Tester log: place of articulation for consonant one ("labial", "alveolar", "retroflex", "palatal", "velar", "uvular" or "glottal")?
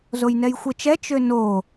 alveolar